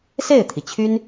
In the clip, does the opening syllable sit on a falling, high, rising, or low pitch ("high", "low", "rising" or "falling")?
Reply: falling